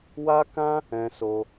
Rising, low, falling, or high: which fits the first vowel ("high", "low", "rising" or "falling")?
high